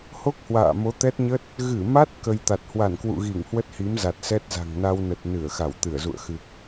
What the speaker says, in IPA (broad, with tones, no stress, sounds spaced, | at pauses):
h o˦˥ k̚ h w a̰ː˧˨ m o˨˦ t̪ ɛ˦˥ t̚ ɲ ə˦˥ t̚ | ɣ ɨ˧˩ m a˦˥ t̚ k ə˧ j t̪ a˨˩ t̚ h w a˧˩ n k w ṵ˧˨ ɣ i˧˩ ŋ h w ə˦˥ t̚ h i˨˦ m z a˨˩ t̚ s ɛ˦˥ t̚ z a̤˨˩ ŋ n a˧ w n ə˨˩ t̚ n ɨ˧˩ ə̯ x a˧˩ w t̪ ɨ˧˩ ə̯ z ṵ˧˨ ə̯ x ɨ˨˩ k̚